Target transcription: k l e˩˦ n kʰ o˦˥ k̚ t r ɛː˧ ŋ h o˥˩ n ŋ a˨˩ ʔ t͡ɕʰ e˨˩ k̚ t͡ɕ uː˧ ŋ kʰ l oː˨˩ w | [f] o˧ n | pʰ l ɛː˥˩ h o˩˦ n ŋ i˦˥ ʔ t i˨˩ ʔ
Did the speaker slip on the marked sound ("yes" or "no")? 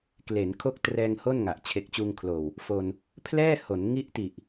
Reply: no